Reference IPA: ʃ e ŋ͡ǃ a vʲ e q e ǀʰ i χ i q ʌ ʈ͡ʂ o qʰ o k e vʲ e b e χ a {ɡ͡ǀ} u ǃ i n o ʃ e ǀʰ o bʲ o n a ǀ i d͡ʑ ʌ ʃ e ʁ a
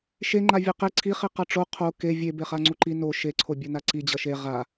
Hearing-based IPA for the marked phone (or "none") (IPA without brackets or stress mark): ŋ͡ǀ